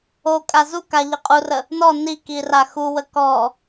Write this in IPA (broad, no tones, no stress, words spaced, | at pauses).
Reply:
okʼa zuka ʎəqʼurə | nɔ niki raxuwə kɔ